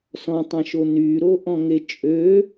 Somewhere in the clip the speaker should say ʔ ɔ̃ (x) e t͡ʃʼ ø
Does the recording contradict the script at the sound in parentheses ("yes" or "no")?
yes